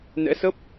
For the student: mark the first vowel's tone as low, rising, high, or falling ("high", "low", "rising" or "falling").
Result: rising